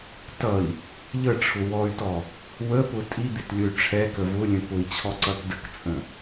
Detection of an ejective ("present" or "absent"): present